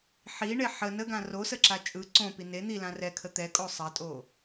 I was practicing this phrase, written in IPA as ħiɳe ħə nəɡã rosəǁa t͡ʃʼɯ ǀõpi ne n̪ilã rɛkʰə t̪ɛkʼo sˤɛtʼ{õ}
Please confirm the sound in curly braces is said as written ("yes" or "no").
no